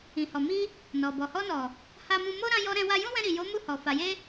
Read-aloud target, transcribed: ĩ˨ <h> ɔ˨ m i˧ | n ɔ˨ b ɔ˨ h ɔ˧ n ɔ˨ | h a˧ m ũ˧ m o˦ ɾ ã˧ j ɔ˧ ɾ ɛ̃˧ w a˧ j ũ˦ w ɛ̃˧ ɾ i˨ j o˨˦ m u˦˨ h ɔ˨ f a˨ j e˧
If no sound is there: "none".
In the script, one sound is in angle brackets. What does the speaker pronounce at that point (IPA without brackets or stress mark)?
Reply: h